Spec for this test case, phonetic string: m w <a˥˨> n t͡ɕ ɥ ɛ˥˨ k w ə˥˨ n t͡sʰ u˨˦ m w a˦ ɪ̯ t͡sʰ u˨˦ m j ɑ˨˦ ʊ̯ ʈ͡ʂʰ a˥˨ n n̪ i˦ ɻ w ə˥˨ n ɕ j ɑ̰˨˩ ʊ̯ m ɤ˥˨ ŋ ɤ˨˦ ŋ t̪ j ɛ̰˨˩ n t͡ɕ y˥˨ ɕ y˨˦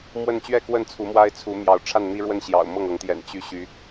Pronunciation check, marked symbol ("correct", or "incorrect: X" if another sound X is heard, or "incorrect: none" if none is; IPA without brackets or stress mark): incorrect: ə˥˨